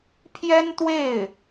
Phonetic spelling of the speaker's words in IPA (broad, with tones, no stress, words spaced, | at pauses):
pʰjɛ˥nt̪we˥˩ɪ̯